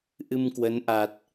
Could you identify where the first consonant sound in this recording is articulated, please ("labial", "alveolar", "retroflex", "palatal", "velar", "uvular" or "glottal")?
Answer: glottal